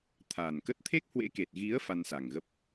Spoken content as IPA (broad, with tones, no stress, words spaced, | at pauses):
t̪ʰaː˨˩nkə˦˥t̚ t̪ʰe˦˥k̚hwḛ˧˥ ke˨˩t̚ɣi˨˦ə̯ fa˧nsa˨˩ŋɣə˦˥p̚